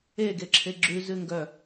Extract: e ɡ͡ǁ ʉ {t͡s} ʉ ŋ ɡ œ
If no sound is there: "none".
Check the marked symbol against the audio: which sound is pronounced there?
z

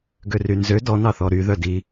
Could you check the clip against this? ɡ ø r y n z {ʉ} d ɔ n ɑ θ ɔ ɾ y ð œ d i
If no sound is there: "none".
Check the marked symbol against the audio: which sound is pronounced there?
ø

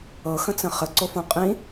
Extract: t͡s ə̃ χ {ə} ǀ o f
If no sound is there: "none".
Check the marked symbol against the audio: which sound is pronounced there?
ə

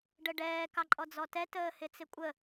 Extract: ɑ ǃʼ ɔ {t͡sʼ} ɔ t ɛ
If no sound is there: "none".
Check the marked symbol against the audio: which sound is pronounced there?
d͡z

